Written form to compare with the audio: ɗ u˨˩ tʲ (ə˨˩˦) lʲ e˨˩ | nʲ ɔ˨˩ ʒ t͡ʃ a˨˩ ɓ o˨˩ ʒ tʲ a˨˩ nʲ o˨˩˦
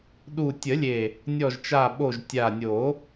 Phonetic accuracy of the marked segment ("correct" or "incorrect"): correct